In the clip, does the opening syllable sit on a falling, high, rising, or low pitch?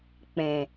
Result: low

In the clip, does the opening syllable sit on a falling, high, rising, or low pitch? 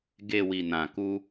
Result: low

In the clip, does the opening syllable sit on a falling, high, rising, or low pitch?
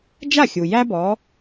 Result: falling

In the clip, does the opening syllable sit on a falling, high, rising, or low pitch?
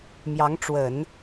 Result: rising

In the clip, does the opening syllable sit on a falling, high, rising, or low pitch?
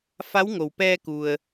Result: rising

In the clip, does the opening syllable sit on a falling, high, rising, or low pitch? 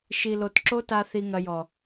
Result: low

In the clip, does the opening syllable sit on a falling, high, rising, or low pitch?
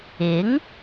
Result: rising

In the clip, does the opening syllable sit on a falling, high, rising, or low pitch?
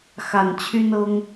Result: low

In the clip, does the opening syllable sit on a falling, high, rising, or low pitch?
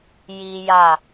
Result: high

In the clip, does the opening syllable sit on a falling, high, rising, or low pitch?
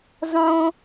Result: high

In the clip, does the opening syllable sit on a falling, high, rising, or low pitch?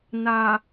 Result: low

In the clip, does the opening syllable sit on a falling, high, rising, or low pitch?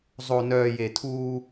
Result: low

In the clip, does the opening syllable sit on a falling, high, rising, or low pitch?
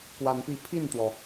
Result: rising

